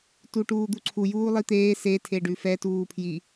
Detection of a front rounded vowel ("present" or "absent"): absent